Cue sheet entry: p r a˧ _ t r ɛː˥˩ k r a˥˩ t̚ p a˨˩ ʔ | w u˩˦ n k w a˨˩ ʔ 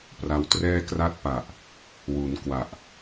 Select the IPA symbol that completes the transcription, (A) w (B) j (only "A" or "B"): A